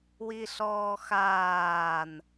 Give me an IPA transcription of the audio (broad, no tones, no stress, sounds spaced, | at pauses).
w i ɬ ɔː x aː n